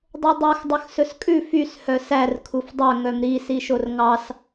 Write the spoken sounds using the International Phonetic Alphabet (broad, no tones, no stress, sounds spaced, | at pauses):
dˤ o dˤ u x dˤ œ x s ɵ s kʼ ʉ f y s h œ s æ r kʰ u f dˤ œ ŋ œ m ɾ i s i ʃ o r ŋ ɑ s